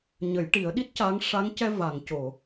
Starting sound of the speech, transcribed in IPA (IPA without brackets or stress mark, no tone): ɲ